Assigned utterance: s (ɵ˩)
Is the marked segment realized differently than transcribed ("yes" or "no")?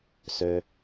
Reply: yes